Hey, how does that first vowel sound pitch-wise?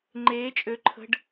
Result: rising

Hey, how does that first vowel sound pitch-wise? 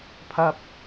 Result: high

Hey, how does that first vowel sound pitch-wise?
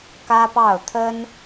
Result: high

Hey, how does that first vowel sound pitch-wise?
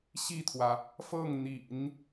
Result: falling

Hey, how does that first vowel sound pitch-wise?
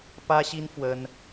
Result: high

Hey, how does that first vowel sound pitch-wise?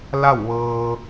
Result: falling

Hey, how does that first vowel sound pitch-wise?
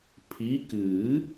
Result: rising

